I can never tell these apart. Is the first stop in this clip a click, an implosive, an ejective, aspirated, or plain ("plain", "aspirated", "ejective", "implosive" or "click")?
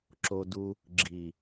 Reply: click